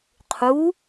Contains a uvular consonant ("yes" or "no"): yes